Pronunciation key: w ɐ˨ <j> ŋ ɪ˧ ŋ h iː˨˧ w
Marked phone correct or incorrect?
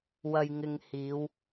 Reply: correct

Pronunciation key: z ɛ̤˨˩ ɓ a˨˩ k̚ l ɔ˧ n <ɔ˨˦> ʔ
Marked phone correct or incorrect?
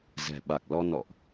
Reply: incorrect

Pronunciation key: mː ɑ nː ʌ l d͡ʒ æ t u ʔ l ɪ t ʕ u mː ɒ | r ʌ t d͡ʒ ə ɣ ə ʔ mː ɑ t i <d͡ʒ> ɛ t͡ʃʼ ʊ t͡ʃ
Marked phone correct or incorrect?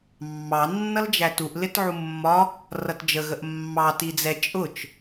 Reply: incorrect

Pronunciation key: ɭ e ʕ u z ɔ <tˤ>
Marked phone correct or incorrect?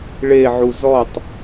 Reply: correct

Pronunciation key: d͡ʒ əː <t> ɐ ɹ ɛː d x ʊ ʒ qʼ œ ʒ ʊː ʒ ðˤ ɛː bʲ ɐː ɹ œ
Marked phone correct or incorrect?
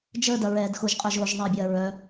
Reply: incorrect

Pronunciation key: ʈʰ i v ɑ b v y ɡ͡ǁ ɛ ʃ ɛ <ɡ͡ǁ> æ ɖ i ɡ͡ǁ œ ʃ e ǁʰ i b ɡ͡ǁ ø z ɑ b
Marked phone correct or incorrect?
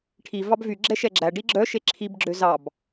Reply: correct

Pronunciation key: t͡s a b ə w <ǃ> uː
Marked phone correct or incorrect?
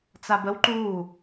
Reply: correct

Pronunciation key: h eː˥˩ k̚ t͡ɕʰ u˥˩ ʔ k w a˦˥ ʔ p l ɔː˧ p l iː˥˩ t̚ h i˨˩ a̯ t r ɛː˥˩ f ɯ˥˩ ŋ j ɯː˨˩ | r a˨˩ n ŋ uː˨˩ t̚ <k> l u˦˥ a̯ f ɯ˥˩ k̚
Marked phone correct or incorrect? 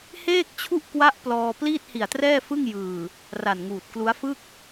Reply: correct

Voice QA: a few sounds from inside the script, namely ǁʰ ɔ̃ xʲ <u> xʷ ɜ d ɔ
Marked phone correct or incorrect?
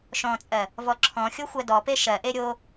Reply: incorrect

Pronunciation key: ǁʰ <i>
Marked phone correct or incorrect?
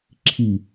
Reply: correct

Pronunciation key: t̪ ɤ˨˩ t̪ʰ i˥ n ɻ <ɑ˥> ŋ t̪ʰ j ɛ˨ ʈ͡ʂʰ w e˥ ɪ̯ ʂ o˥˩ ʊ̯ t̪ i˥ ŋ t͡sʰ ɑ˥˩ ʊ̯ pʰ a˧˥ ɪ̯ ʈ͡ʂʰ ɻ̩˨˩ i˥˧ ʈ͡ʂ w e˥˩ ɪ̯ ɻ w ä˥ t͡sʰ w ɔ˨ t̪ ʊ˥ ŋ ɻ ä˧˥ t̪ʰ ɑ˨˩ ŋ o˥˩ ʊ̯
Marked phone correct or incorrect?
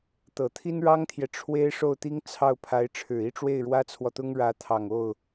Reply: correct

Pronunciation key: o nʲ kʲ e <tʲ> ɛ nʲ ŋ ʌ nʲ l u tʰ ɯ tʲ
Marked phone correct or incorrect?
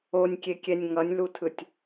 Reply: incorrect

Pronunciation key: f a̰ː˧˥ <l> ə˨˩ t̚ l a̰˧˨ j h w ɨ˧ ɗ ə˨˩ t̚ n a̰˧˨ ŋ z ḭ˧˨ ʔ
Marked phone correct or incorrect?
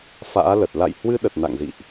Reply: correct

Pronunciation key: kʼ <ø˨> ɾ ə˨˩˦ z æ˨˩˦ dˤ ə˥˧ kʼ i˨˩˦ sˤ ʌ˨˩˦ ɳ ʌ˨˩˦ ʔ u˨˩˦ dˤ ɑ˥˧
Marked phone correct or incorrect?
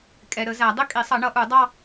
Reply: incorrect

